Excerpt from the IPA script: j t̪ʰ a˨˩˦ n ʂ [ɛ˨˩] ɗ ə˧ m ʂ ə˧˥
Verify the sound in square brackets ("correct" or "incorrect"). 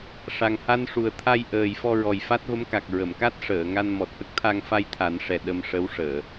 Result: correct